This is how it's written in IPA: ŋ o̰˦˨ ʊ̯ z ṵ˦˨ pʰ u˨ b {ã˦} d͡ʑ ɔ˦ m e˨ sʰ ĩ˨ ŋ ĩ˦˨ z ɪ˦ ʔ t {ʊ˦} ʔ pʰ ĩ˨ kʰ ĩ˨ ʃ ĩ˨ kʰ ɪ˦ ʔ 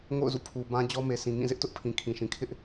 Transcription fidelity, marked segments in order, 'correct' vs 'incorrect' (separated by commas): correct, correct